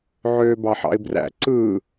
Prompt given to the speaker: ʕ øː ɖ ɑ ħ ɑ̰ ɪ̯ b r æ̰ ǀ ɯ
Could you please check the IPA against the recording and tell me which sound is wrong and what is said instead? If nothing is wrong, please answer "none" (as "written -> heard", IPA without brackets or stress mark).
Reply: ɖ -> b